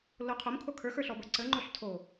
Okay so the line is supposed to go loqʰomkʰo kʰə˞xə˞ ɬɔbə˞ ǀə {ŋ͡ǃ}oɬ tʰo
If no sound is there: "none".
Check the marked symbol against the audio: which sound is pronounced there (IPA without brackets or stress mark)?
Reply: ŋ͡ǃ